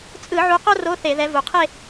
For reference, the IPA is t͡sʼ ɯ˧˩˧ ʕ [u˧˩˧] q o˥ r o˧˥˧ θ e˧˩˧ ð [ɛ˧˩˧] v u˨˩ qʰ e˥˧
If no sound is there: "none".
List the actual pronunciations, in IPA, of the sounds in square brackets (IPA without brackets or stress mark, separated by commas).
u˨˦, ɛ˨˦